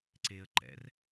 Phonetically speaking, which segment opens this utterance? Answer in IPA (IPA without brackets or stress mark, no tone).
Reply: ǀ